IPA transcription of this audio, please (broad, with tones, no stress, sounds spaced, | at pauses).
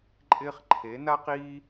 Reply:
ǃʼ ɪː˦ χ ǃʰ e˨˦ n a˦ q iː˦